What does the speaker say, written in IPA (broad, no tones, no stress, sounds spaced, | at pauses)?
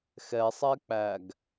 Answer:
x ɛ sˤ ɛ k͡p æ ɡ